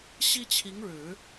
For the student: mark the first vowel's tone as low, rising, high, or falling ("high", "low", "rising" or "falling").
high